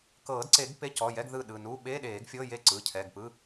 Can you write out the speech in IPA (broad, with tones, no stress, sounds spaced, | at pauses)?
k ɤː˨˩˦ d ǀ e˨˩˦ ɡ p e˧˥˧ c ɔ˩˧˩ j ɛ˧˥˧ ɡ ð ɯ˥˩ ɗ ɯ˩˧˩ n u˧˥˧ ɓ e˧˥˧ ɗ eː˨˩˦ ɡ fʲ ɤ˧˥˧ j e˥˩ ǀ ɯ˩˧˩ cʰ ɛ˩˧˩ ɡ p ɯ˧˥˧